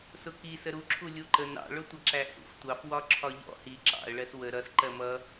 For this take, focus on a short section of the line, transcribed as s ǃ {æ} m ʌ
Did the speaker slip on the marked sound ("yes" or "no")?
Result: yes